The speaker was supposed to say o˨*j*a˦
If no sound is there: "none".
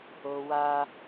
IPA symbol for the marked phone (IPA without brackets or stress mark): w